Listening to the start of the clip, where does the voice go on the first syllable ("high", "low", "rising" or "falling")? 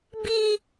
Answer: high